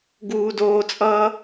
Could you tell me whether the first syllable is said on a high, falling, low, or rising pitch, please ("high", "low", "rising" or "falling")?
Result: low